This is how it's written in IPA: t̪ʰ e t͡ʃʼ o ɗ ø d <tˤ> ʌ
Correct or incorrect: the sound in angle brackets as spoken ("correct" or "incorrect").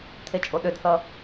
incorrect